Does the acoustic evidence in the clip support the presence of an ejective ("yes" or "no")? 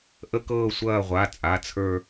yes